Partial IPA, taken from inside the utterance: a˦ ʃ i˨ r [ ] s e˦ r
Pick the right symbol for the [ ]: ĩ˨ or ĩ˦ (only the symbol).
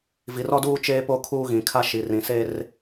ĩ˨